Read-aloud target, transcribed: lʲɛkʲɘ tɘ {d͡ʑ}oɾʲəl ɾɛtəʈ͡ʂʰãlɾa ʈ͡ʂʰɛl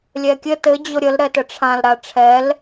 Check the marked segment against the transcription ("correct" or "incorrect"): correct